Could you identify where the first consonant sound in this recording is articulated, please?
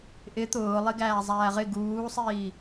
glottal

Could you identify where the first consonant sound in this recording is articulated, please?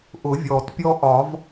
glottal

